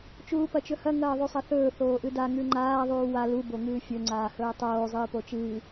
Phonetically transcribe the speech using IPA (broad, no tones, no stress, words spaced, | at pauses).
t͡ʃuːpɐt͡ʃɵhɐ ŋɐːðˤusˤɐθɵː θoːʔɨda ŋʉŋ͡ǃaː ðˤuːwa lu boŋɨːfʲɵ ŋ͡ǀaːhɵːtˤoː zˤɨːpot͡ʃɨː